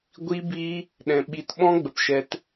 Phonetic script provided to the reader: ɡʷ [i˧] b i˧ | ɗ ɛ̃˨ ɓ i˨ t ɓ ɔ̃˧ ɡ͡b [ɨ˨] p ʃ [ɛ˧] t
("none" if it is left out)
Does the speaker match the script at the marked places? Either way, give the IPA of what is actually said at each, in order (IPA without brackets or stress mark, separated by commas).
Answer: i˧, ə˨, ɛ˧